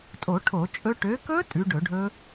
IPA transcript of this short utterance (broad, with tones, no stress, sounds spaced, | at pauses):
tʼ o˧˩˧ ʈʰ o˧˩˧ t͡ʃʼ ɵ˦˥ ʈ ø˨˦ k ɵ˦˥ tʼ ʉ˨˦ ɖ ɵ˧˩˧ ɖʱ ɵ˦˥